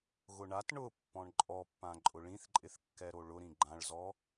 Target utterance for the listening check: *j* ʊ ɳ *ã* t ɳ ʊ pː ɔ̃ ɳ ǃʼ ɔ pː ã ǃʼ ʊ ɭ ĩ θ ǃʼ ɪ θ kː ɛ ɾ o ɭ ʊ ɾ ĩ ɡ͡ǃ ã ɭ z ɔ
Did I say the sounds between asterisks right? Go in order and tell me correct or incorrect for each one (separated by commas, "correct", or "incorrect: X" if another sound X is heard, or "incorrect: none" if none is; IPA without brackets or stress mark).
incorrect: ɣ, incorrect: a